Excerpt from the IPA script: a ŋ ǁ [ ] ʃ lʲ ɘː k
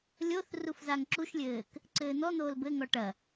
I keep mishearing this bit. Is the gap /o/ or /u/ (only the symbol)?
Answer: u